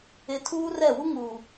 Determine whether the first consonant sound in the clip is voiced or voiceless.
voiceless